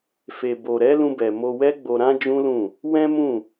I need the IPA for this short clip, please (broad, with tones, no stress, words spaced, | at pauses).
fe˨bo˨ ɾɛ˨˦lũ˧bɛ˨ mo˧wɛ˦ɡ͡bo˧ ɾã˦d͡ʒũ˦lũ˦˨ | wɛ̃˦mũ˦˨